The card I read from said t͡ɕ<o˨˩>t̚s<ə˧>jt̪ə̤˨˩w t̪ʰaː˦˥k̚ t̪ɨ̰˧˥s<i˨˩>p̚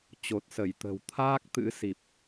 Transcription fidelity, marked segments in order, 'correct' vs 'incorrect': correct, incorrect: ə˧˩, correct

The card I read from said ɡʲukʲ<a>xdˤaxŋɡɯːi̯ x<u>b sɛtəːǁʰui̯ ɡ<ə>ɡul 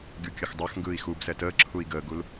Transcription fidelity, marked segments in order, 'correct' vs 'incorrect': incorrect: ə, correct, incorrect: əː

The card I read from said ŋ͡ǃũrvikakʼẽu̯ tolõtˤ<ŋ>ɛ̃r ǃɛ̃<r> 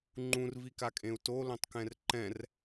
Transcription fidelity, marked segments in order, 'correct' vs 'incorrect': incorrect: k, correct

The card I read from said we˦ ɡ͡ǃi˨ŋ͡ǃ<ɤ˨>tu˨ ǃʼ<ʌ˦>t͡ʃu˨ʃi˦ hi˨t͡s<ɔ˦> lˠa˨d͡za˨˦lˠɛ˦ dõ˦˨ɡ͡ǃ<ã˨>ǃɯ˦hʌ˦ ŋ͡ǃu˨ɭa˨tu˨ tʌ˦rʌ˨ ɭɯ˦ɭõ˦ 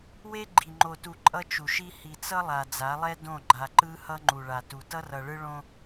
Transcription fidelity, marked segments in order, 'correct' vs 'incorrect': incorrect: o˨, correct, incorrect: ʌ˦, incorrect: a˨

